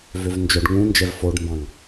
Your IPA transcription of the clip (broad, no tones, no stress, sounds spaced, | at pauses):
v ø v n d͡ʒ œ ɖ ŋ ũ n d͡ʒ ɛ v f o ɖ m b ɑ̃ ŋ